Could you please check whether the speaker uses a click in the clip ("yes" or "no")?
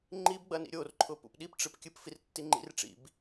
yes